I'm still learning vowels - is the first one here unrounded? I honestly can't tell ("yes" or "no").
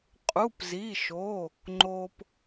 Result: no